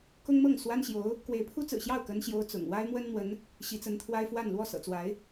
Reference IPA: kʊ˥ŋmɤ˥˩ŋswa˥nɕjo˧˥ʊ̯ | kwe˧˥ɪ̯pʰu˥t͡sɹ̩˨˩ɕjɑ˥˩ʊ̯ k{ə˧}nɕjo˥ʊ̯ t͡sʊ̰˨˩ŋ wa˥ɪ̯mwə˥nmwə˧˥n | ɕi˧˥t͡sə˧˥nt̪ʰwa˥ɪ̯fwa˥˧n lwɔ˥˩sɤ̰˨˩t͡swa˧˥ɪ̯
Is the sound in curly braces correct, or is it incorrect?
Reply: incorrect